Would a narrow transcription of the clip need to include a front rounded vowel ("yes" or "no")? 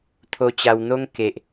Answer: no